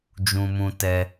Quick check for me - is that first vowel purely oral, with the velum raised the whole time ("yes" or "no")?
no